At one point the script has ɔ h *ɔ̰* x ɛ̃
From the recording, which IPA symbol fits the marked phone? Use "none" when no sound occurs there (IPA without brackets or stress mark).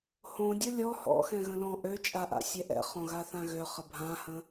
ɔ̰